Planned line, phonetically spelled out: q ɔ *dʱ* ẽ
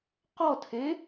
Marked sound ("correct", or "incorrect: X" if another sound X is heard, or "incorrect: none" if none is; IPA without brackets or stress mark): incorrect: tʰ